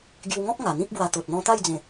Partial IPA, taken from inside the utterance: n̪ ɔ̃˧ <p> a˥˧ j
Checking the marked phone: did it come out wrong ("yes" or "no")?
yes